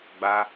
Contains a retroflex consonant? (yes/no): no